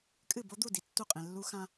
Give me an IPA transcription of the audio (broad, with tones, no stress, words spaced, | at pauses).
kʼɨ˥˨bo˦˥d̪u˥˨ di˧tːu˥˨qʼẽ˧lːu˦˥ xã˧